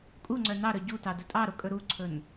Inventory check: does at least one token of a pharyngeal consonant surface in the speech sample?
no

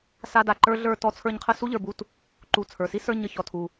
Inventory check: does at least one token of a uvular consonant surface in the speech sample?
yes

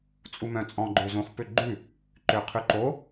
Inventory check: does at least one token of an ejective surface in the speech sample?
yes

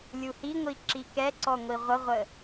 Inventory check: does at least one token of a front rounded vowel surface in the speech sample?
no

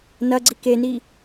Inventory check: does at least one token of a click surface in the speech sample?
yes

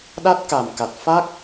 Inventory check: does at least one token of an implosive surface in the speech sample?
yes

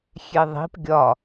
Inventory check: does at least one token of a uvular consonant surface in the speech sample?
no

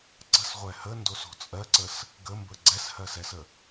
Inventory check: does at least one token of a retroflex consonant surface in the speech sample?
no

